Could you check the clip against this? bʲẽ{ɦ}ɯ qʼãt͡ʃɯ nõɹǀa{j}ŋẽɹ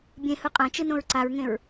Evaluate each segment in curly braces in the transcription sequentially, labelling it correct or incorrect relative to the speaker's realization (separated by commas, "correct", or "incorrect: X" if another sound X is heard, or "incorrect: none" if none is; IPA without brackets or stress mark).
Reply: incorrect: h, incorrect: ɹ